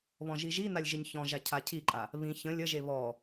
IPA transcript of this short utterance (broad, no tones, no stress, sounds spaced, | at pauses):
β ɔ̃ ʒ i ʒ i n a lʲ ʒ ɪ ɲ ç ɔ̃ ʒ a cʰ a cʰ i ǃʼ a | β ĩ ç ə̃ lʲ ə ʒ e β ɔ